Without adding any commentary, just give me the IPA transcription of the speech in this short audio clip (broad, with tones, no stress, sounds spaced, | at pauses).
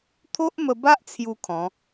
t̪ʰ o˦ ʔ m ə˧ b a˦ ʔ t͡sʰ j u˥˧ kʰ ɔ̃˨˦